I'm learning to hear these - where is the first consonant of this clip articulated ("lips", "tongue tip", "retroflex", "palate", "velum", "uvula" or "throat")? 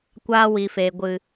velum